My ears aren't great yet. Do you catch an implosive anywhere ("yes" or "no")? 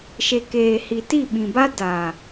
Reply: yes